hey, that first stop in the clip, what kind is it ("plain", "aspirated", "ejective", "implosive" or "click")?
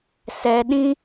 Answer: implosive